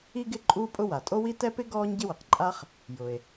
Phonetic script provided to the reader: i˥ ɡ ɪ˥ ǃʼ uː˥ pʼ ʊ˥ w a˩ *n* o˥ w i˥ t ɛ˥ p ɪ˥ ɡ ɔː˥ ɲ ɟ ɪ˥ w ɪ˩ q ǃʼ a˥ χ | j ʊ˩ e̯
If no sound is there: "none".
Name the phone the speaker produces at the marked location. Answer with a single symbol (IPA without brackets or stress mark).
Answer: tʼ